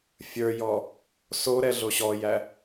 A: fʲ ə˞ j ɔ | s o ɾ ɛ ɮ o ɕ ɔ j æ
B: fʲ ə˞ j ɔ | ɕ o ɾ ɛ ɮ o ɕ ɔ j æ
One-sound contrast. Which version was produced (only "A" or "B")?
A